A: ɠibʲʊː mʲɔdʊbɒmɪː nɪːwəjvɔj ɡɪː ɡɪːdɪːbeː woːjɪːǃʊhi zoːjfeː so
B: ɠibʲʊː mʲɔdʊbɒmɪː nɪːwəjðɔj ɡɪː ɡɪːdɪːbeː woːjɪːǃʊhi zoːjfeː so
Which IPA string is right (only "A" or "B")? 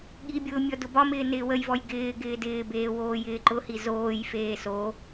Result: A